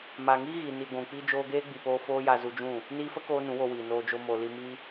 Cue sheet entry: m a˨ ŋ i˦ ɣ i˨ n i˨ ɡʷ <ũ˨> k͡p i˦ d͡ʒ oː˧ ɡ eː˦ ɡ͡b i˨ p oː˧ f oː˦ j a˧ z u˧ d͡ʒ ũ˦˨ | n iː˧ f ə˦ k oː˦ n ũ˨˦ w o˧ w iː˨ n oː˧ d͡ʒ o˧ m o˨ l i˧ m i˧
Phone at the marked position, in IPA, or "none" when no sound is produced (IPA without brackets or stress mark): ũ˨